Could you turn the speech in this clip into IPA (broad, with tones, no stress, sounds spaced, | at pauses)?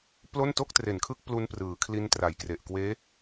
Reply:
p l o˥˩ n t o˥˩ k̚ t r e˨˩ n kʰ ɯ˦˥ k̚ p l u˦˥ n p r ɯː˩˦ kʰ l i˦˥ n t r a˨˩ j k r e˨˩ ʔ k w eː˦˥